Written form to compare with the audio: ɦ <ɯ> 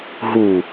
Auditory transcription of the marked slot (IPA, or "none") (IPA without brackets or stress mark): u